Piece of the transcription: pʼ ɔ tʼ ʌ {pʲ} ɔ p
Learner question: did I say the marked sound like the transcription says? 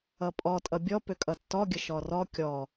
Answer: no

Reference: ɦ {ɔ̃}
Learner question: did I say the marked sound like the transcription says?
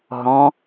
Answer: yes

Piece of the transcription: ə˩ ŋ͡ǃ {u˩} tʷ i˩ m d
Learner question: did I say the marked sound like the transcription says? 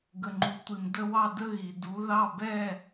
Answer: yes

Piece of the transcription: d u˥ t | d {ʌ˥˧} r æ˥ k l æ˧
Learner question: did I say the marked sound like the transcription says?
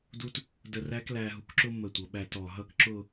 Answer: no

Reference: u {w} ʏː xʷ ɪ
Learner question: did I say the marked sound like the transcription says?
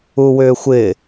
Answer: yes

